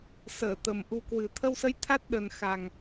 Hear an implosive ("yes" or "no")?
yes